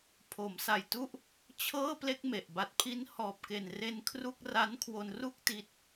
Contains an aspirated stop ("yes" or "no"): yes